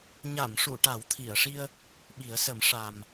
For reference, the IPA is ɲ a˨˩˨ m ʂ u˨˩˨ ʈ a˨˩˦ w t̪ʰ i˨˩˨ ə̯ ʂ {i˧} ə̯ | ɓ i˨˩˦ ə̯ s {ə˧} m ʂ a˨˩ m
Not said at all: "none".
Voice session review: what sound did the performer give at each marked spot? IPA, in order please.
i˧, ə˨˩˦

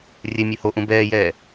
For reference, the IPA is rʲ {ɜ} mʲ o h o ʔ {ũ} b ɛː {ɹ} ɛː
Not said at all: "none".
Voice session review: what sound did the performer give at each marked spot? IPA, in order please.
ɛ, ũ, j

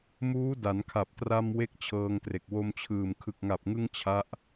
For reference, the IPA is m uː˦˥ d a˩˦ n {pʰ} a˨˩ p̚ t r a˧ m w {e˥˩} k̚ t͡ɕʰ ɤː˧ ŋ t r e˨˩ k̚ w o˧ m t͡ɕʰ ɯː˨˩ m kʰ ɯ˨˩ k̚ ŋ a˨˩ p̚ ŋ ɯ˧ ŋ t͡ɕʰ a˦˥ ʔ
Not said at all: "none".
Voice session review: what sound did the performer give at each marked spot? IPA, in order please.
kʰ, e˥˩

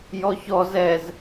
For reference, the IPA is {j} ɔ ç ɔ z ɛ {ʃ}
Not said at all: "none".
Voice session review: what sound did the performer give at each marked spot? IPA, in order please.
j, z

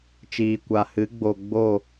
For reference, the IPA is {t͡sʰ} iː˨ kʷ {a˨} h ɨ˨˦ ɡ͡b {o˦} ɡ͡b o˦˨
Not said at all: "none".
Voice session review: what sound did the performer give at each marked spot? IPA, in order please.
t͡ʃ, a˨, o˨

